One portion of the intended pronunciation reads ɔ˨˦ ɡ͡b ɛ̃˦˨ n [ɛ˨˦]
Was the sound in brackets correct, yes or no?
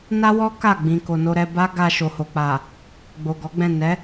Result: yes